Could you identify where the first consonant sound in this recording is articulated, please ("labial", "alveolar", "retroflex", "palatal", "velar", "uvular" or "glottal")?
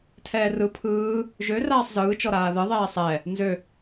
alveolar